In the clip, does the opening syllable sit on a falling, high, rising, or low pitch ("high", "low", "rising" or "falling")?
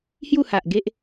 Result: falling